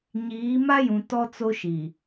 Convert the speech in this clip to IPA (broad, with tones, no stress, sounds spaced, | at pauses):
ɲ iː˨˦ m a˦ j ũ˨ t ɔ˦ t͡s o˦ ʃ i˨